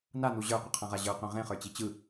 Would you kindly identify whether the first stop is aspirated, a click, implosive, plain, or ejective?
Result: plain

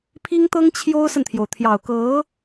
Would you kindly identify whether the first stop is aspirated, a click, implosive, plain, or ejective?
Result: aspirated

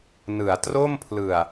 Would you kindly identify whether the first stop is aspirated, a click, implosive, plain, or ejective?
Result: plain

